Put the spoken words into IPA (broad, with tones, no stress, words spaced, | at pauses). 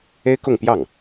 e˥ɪ̯kʊ˥˧ŋpjɑ˥˩ŋ